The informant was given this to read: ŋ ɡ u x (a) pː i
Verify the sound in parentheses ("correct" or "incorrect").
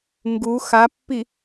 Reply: correct